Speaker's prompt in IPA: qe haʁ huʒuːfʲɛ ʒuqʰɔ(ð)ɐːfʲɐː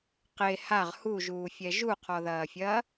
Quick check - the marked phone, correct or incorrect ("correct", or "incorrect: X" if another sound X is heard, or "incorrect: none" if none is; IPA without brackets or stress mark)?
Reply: correct